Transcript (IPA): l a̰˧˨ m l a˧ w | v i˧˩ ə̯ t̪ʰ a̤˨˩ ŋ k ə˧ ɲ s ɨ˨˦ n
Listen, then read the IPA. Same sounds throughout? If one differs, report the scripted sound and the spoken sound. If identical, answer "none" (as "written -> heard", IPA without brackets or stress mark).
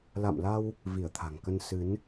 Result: ɲ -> n